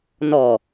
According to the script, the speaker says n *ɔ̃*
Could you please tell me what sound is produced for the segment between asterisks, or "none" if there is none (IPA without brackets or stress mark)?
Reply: ɔ